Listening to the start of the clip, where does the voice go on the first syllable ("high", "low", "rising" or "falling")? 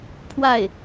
falling